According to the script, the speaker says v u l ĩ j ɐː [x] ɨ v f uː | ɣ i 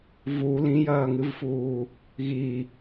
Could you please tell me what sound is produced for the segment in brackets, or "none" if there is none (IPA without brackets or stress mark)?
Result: ŋ